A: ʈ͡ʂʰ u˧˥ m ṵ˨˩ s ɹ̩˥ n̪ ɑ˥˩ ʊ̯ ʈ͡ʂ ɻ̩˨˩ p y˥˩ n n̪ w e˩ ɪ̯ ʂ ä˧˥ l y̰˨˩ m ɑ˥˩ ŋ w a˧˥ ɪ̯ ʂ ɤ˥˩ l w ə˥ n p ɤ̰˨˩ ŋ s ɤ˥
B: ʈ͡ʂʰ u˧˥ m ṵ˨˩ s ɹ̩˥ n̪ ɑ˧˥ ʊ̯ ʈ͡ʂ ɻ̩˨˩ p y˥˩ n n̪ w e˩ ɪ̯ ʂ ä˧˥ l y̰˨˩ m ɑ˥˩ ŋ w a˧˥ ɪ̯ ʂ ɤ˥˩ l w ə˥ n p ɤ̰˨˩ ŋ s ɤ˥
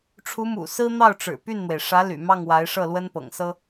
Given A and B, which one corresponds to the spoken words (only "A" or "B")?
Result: A